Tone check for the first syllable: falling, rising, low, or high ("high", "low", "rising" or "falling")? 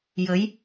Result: rising